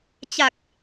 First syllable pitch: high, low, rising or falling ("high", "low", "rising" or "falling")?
low